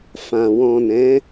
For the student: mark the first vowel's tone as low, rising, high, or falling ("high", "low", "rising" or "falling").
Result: low